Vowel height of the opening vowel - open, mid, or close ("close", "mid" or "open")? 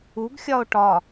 close